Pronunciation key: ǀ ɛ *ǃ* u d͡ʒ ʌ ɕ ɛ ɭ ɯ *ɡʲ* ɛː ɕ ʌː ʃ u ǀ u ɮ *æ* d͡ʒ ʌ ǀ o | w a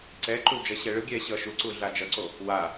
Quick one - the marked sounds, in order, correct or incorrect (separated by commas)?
correct, correct, incorrect